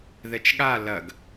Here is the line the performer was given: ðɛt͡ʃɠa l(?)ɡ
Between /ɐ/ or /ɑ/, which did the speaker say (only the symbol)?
ɐ